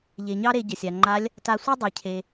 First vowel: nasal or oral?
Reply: oral